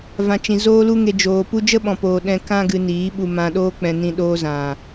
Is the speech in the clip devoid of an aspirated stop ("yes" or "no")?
yes